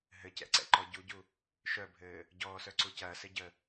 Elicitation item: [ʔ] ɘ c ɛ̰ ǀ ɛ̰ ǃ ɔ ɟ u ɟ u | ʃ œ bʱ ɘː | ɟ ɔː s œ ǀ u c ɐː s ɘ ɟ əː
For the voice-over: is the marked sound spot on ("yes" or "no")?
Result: no